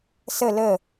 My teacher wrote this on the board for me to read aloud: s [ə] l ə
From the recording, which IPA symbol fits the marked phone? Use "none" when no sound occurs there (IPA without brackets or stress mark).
ə